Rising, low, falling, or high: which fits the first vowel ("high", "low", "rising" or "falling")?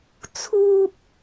high